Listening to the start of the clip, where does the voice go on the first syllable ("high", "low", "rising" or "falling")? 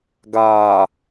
low